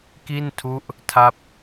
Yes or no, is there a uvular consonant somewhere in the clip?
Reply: no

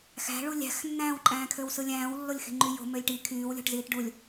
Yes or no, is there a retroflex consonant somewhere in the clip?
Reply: yes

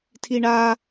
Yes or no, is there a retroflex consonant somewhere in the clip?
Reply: yes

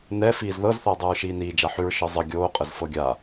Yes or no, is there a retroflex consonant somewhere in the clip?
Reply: no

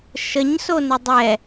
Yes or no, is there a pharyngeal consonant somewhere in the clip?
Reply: no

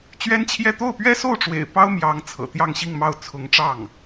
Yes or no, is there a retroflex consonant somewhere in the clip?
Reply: yes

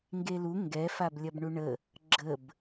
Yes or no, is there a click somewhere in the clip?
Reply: yes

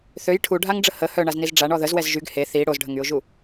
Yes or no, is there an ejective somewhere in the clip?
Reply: no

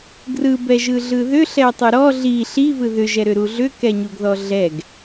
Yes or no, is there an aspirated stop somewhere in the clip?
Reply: no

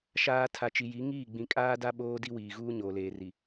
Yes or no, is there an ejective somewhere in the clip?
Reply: yes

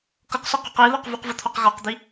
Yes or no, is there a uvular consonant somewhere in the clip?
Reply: yes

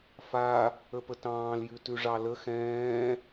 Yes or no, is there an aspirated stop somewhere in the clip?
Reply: no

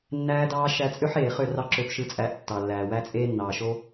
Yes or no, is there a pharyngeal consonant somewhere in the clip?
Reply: yes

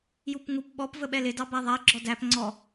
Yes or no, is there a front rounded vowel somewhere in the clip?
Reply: no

